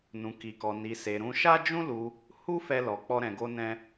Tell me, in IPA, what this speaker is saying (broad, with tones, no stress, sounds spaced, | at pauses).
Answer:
n ũ˧ k i˧ k ɔ˧ n i˧ s e˧ ɾ ũ˧ ʃ a˦ d͡ʒ ũ˦ l u˧ | h u˦ f ɛ˦ l ɔ˧ k͡p ɔ˦ ɾ ɛ̃˧ ɡ o˦ n ɛ̃˦